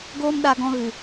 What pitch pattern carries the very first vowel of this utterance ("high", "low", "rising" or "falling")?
high